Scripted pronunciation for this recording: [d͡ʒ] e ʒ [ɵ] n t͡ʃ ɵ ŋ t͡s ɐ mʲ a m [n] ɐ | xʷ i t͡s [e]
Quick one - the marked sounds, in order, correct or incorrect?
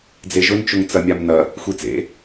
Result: incorrect, correct, correct, incorrect

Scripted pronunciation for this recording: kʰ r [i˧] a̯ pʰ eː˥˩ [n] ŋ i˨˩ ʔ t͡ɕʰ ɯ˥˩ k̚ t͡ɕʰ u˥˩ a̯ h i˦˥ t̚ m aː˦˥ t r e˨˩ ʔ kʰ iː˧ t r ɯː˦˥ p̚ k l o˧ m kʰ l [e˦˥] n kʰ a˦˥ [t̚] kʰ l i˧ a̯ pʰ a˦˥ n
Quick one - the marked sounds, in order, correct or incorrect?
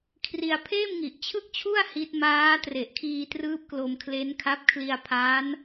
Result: correct, incorrect, correct, incorrect

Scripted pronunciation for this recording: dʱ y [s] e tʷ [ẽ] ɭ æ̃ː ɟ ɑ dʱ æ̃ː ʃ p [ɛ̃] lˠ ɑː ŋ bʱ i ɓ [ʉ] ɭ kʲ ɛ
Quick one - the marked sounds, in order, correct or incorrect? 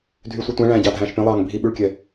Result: incorrect, incorrect, incorrect, correct

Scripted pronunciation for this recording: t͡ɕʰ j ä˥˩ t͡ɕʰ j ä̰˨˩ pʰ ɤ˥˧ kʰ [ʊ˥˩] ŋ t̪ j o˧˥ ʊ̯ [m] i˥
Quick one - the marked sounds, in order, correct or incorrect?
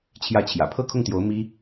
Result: correct, correct

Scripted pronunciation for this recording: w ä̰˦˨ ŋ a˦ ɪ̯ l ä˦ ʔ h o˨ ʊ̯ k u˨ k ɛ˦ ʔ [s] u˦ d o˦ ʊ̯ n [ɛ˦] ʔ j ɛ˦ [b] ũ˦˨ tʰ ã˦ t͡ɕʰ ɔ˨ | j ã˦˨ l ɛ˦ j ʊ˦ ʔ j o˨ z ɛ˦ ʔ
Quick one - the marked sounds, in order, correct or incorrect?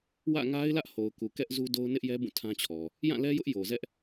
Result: incorrect, incorrect, correct

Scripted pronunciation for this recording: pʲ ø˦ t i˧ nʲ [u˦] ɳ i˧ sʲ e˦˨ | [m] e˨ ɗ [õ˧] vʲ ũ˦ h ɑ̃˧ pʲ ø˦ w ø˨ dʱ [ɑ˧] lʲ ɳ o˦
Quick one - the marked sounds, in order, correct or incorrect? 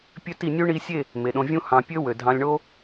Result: correct, correct, correct, incorrect

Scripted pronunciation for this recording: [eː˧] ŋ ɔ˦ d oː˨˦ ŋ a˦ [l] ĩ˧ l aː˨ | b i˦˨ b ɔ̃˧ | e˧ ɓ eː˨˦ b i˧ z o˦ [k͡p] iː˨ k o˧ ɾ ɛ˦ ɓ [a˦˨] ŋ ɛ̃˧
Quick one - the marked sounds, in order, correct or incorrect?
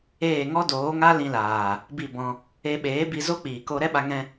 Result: incorrect, correct, correct, incorrect

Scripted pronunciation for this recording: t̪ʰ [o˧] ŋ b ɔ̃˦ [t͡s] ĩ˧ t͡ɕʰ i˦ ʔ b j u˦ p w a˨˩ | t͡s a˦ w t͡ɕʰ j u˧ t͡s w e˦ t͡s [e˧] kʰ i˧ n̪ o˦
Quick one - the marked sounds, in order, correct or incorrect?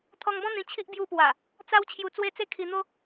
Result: incorrect, incorrect, incorrect

